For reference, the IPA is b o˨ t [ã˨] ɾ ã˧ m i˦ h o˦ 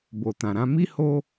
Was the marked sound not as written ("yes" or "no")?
no